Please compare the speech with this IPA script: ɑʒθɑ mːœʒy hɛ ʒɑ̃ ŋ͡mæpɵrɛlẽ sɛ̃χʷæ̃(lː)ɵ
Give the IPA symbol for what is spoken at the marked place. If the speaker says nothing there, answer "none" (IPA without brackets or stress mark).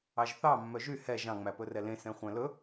l